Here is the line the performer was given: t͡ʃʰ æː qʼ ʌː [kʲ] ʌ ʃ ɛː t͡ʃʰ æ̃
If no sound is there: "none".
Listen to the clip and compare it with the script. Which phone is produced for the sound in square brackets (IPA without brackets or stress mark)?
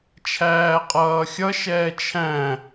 xʲ